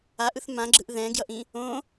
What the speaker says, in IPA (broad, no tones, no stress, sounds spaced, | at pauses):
a ʔ ɯ θ m ã ɡ͡ǁ ɯ ʔ ð ɛ̃ ɡ j ʌ ʔ ĩ | õ